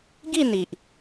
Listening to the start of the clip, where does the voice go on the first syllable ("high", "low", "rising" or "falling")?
falling